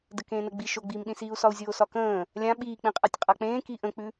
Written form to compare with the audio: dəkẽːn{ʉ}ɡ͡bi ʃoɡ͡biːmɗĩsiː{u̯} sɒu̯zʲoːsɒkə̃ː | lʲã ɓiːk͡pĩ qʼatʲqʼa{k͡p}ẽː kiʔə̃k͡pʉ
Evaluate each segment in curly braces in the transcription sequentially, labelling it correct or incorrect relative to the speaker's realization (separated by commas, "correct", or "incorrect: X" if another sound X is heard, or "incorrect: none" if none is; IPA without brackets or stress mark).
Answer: incorrect: ə, correct, correct